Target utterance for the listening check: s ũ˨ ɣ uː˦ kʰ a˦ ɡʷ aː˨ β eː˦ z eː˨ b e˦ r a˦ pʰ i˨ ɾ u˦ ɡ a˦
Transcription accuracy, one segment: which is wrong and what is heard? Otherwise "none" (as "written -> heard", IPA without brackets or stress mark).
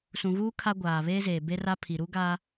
none